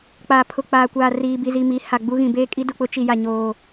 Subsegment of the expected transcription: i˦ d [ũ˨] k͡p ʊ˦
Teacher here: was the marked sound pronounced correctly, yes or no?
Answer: no